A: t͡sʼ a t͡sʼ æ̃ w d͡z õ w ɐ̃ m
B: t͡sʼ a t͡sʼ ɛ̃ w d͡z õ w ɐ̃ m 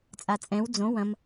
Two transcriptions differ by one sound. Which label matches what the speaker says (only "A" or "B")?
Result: B